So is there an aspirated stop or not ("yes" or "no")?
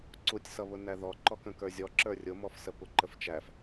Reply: no